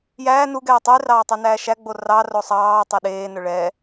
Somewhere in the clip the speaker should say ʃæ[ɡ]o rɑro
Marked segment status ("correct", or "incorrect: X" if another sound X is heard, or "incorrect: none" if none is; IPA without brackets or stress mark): incorrect: ɡ͡b